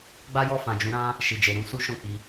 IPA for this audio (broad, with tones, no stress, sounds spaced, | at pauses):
ɡ͡b a˦ j ɔ˦˨ f ã˨ d͡ʒ ũ˨˦ ɾ ã˦ | ʃ i˨ d͡ʒ e˨ ɾ ũ˧ s u˦ ʃ ɔ̃˦˨ k͡p i˧